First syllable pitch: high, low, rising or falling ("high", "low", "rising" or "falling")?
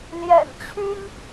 low